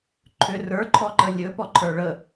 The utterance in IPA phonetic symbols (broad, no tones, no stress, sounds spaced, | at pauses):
ǃʰ ʏ r ə˞ ǃʰ ɔ ǃ ə lʲ ɵ p ɔ ǃʰ ə˞ ɭ ə